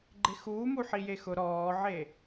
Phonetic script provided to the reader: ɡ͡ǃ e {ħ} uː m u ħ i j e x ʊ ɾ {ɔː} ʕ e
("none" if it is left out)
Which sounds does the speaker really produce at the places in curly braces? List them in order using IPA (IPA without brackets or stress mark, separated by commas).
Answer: x, ɔː